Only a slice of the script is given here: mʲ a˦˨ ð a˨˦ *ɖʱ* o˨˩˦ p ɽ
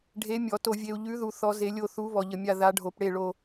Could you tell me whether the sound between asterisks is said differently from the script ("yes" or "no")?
no